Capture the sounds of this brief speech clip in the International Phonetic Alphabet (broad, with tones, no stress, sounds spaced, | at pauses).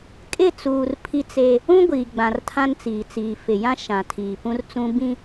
kʼ ɪ˦˨ t͡s uː˨ r pʰ i˦ t͡s e˦ | ũ˦ ɡʷ iː˨ ɡ͡b ã˨ r tʰ ã˦ n t͡s iː˨ t͡s iː˨ f ɪ˨ j ã˦ ʃ ã˨ tʰ iː˨ p ũ˦ r t͡s ũ˦ b ĩ˦